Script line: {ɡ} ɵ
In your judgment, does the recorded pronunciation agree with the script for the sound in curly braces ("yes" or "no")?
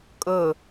no